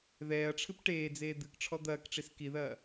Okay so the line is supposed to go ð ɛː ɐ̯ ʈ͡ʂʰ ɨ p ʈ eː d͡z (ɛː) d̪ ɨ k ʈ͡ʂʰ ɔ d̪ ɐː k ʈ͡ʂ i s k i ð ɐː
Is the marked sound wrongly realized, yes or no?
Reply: yes